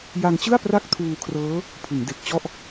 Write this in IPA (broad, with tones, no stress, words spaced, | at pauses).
ja˧ŋt͡ɕɯ˥˩a̯ pra˥˩k̚tʰuː˧kʰrɤː˦˥ | pʰɯ˩˦ŋde˨˩k̚t͡ɕɔ˥˩ʔ